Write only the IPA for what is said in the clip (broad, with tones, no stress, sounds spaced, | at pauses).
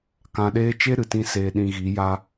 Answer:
k ã˧ ɗ eː˦ t͡ʃ e˦ ɾ ɨ˨ t ĩ˦ s eː˧ ɗ ĩ˧ ɣ i˨˦ j a˧